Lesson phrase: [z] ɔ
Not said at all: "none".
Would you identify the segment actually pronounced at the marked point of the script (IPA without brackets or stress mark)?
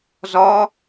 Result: z